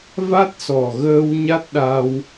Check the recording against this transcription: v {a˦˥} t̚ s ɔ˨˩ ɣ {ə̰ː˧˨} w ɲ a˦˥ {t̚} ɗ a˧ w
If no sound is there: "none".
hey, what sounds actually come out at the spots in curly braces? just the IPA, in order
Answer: a˦˥, əː˧, t̚

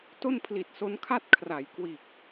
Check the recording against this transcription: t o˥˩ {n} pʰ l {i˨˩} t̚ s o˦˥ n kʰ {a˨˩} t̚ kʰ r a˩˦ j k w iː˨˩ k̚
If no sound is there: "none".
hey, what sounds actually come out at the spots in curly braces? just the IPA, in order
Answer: n, i˨˩, a˥˩

